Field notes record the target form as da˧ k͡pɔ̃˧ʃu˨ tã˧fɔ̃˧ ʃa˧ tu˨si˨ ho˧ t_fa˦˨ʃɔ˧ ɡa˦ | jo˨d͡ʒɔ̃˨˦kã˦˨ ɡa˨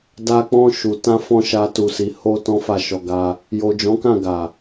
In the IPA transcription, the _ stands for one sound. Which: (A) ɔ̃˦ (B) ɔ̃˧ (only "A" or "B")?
A